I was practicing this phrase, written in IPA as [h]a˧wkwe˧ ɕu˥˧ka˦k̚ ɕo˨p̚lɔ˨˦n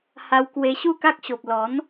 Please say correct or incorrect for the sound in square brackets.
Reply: correct